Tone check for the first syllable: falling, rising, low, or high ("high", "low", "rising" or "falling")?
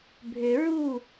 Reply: low